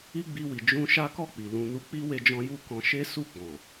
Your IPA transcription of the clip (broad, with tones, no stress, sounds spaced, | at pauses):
i˦ ɡ͡b i˧ w i˨ d͡ʒ ũ˧ ʃ a˦ k ɔ˦˨ k͡p i˨ l ũ˧ n u˧ k͡p i˦ w e˦ d͡ʒ ɔ̃˦ j u˦ k ɔ̃˧ ʃ e˦ s u˦˨ ɡ͡b ɔ̃˨